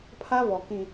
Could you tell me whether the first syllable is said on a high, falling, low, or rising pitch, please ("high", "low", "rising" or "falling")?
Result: high